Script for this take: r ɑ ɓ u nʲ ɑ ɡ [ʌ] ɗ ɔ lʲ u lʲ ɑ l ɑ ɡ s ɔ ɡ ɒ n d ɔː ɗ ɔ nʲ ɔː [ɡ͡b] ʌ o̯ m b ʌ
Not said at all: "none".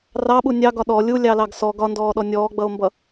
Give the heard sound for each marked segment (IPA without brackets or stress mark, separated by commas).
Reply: ɒ, ɡ͡b